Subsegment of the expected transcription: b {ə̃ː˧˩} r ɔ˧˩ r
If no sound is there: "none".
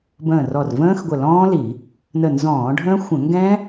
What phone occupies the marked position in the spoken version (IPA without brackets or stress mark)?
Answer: ə̃ː˧˩